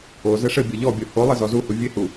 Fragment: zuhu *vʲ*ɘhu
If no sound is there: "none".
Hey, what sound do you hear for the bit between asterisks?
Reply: vʲ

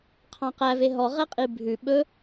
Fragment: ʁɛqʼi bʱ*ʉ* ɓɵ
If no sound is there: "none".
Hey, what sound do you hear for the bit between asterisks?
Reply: ʉ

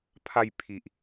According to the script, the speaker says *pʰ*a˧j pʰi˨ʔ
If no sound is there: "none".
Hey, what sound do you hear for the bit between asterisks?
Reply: pʰ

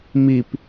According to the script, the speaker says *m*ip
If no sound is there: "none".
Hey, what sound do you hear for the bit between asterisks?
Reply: m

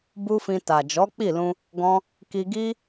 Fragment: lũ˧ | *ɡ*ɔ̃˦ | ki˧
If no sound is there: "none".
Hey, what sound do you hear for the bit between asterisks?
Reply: ɡ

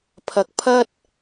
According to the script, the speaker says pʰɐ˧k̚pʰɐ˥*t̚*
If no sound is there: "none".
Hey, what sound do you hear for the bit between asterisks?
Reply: t̚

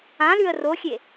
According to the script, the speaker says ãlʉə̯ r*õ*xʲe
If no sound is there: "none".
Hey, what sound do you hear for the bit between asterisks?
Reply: o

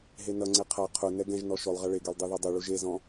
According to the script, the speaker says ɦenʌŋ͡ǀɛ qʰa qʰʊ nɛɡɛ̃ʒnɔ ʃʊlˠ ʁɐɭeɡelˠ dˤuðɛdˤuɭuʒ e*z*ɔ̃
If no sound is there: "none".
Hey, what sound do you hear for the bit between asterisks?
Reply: z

